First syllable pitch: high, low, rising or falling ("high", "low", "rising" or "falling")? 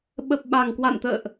low